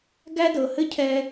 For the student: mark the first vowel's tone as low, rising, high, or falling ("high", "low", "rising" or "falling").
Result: high